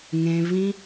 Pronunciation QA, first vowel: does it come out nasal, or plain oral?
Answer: nasal